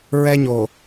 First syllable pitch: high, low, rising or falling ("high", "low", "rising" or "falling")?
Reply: high